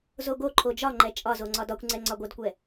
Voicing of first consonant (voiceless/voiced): voiced